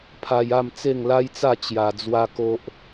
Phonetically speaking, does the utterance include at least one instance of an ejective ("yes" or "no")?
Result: no